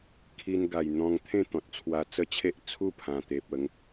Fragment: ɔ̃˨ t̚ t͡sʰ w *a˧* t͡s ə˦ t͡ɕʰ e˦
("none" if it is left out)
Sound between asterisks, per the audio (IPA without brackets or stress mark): a˧